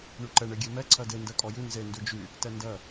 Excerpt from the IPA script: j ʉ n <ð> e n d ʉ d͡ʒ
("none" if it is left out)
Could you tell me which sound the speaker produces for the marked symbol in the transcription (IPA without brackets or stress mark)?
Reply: z